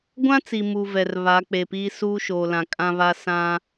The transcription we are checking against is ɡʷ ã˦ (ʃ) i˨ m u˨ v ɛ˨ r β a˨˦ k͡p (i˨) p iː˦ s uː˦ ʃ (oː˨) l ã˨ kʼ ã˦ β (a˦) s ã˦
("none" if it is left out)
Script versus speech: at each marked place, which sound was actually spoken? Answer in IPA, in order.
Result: t͡s, e˨, oː˨, a˦

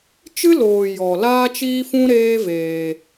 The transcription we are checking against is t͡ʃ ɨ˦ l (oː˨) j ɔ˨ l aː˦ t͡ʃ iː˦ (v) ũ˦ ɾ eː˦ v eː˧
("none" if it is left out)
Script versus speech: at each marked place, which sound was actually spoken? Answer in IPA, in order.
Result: oː˨, f

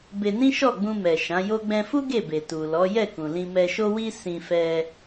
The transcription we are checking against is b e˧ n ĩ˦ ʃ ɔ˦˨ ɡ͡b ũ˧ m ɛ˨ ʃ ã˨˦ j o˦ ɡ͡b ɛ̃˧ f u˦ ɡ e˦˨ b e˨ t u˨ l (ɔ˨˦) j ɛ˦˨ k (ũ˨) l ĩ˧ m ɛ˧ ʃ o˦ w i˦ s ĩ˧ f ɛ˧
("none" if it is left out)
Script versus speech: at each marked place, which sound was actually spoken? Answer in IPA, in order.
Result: ɔ˨˦, ũ˨

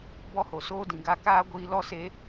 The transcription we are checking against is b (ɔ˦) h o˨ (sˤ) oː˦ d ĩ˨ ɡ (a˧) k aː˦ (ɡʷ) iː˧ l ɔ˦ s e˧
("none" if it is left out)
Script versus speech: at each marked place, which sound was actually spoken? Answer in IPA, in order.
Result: ɔ˦, s, a˧, ɡʷ

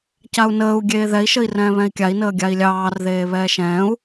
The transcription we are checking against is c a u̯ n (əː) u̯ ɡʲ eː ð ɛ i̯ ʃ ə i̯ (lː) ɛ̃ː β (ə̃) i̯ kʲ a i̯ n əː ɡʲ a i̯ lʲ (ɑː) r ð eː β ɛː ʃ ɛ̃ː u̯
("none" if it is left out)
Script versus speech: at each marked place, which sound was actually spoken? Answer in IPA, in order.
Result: əː, r, ɛ̃, ɑː

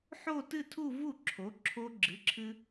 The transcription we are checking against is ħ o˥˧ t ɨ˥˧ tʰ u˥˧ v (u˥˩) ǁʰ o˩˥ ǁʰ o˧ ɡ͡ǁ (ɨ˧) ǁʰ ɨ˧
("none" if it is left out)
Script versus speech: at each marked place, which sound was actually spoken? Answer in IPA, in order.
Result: u˥˩, ɨ˩˥

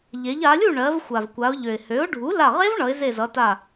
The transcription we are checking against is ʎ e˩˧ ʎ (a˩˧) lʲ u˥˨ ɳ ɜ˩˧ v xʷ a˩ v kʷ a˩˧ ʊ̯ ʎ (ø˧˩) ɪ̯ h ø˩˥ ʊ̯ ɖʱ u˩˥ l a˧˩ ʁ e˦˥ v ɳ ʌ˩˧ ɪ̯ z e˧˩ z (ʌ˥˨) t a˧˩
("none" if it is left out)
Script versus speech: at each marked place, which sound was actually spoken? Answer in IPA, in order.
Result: a˩˧, ø˩, ʌ˩˧

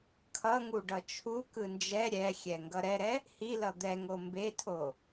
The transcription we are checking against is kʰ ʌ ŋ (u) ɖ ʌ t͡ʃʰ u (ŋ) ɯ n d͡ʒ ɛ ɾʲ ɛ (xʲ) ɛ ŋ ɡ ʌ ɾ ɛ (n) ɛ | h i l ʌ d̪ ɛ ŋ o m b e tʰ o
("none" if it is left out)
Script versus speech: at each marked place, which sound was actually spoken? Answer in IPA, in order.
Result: u, k, xʲ, ɾ

